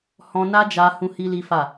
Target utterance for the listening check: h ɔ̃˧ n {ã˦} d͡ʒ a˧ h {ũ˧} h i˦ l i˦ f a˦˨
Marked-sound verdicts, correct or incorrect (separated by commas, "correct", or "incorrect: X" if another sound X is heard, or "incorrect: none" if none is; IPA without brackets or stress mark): incorrect: a˦, incorrect: ũ˦